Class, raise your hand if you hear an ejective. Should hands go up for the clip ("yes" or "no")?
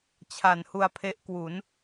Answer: no